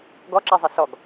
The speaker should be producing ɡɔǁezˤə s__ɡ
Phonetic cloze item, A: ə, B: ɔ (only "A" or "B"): B